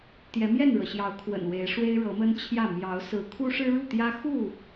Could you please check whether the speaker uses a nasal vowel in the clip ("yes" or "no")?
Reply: no